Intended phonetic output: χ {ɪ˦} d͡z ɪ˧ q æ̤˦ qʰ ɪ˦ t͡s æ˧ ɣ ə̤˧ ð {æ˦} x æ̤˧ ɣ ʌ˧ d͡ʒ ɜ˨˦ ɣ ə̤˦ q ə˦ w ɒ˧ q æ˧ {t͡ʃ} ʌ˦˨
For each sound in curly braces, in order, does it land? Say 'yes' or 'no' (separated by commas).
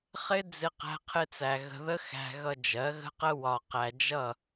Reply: yes, no, no